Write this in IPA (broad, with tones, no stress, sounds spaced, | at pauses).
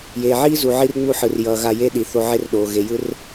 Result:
j eː˨ ʕ iː˦ z u˨ ʕ i˦ r ŋ͡m u˦˨ ħ ɯ˨ r j ʌː˨ ɣ a˦˨ j e˦ ɗ i˨ θ o˦ ʕ e˦ r ɗ oː˨ ɣ e˨ j ɯ˦ r